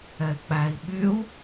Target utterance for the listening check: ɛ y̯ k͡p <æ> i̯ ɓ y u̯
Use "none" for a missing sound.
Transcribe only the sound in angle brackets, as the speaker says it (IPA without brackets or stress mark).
æ